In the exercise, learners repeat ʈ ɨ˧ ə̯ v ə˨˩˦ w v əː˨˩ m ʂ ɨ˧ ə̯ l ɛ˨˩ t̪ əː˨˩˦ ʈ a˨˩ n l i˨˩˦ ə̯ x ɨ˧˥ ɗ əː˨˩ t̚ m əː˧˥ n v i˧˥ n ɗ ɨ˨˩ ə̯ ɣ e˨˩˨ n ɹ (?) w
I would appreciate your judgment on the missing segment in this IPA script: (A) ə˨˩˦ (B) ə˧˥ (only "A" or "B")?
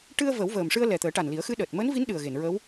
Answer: B